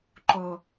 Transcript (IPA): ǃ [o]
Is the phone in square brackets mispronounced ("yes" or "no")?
no